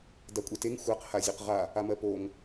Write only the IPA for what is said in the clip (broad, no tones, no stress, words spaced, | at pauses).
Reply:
dakʷʼeteŋ xʷɜq hazʲɜqʁa | amɜpoŋ